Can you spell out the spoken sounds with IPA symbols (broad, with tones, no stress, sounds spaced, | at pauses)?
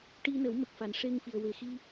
ʈ i˧ n ə˨˩˦ w m ə˨˩ k̚ f a˨˩ n ʂ e˧ ŋ f i˨˩ ə̯ w e˨˩ x i˧